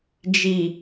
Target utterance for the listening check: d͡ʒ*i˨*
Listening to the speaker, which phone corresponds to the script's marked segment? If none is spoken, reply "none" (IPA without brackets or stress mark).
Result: i˨